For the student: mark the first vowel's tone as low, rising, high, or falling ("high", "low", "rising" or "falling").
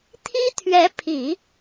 high